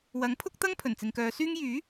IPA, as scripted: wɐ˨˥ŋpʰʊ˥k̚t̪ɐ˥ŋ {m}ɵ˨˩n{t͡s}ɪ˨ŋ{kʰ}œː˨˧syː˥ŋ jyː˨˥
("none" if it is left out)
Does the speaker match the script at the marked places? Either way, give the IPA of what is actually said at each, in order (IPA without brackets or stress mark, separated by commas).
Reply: pʰ, t͡s, k